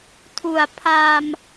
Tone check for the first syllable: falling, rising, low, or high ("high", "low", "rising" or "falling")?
low